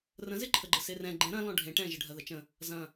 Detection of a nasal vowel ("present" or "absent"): present